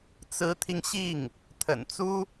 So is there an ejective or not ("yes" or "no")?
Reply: no